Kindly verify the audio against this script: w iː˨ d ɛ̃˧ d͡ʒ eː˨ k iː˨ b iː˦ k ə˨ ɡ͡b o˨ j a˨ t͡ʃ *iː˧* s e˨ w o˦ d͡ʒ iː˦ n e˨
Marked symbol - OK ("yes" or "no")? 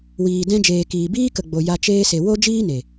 no